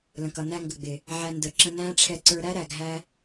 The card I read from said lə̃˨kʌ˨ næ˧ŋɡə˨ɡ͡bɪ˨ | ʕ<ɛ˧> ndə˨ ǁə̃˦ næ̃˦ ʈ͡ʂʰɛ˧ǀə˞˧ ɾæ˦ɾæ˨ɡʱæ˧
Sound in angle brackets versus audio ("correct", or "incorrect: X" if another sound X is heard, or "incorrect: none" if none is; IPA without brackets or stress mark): incorrect: æ˧